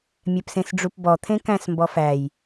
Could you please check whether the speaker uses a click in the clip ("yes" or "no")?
no